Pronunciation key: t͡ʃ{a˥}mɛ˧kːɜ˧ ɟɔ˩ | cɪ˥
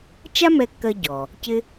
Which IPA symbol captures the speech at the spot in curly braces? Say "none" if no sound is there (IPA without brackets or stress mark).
a˥